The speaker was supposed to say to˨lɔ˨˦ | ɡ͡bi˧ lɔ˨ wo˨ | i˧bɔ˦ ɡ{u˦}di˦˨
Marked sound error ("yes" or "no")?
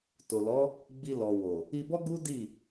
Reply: no